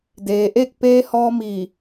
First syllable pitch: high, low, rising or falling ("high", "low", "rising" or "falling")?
low